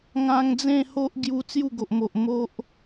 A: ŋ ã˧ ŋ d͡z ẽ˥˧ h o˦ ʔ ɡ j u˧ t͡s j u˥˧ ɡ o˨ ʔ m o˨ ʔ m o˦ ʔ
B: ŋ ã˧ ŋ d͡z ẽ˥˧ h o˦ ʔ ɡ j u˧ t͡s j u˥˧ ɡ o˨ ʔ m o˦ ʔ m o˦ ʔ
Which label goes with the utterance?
A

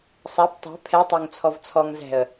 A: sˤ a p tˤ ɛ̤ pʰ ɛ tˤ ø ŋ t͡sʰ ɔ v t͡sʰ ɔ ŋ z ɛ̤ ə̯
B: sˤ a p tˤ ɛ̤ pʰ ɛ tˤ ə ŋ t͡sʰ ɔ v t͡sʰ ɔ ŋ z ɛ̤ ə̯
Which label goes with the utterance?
A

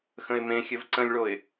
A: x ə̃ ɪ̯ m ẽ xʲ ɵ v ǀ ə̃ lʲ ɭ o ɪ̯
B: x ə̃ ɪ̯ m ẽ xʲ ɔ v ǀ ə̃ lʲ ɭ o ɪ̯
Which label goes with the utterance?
A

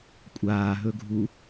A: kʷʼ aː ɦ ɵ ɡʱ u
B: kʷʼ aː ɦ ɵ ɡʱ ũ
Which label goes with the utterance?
A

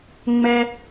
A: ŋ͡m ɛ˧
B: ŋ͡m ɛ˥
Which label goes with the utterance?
B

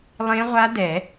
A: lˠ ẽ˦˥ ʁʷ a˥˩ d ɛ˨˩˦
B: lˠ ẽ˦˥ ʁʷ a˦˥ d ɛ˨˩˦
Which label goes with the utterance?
B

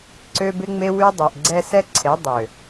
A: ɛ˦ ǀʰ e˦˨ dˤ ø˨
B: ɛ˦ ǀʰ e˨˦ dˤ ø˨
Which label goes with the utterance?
B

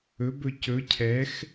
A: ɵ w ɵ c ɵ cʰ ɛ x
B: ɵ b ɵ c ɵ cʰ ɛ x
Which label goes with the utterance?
B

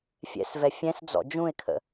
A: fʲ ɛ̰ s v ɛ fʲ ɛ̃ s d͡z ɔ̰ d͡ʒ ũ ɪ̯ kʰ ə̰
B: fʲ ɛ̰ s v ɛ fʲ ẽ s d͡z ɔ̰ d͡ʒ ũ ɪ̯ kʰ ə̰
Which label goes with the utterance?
A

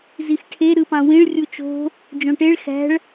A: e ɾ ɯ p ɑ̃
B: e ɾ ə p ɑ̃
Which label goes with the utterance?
A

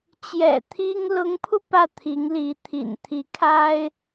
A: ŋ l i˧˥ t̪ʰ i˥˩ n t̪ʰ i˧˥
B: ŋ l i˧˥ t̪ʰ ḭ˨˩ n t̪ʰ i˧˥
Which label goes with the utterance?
B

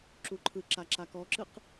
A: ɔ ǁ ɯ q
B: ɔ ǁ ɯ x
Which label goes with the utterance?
A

